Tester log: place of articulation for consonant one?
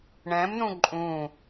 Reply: retroflex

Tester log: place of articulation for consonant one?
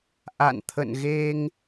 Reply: glottal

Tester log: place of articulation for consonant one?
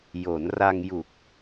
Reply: palatal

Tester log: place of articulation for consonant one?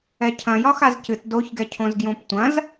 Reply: palatal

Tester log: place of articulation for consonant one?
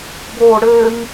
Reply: labial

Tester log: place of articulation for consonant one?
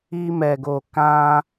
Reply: labial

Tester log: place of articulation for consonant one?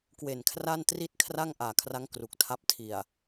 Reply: velar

